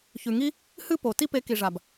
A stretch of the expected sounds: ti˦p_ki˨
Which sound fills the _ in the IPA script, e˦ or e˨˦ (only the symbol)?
e˨˦